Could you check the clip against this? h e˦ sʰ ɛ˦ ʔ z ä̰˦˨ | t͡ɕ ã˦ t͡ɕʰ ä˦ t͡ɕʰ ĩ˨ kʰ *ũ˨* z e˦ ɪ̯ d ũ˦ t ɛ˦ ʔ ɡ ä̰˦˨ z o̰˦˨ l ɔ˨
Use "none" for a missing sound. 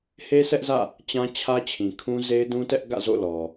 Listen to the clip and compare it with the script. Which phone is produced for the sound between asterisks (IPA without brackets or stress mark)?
ũ˦